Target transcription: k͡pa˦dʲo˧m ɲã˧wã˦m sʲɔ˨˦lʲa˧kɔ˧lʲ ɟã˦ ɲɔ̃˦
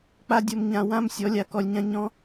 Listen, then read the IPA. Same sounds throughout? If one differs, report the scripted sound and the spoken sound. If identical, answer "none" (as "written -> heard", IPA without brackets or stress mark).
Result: ɟ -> ɲ